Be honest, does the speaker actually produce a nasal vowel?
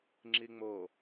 no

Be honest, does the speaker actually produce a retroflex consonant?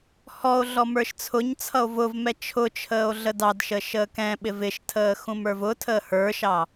no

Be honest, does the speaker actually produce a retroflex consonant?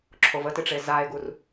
yes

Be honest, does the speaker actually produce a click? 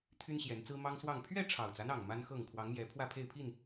no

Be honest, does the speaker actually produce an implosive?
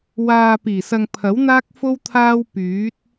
no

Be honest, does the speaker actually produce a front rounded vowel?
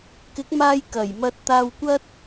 no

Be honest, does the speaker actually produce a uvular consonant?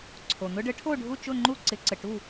no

